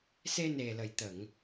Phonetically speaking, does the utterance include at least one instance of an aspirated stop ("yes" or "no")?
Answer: no